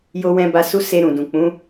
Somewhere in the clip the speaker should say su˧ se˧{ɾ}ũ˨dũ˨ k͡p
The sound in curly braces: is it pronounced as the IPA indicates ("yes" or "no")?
yes